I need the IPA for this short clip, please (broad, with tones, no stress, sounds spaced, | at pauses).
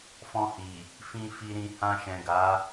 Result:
f ɔ̃˧ h i˨ | f ĩ˧ f i˧ ɾ ĩ˧ h ã˧ ʃ ɛ̃˨ ɡ a˨˦